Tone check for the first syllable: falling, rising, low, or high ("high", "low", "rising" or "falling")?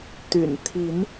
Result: low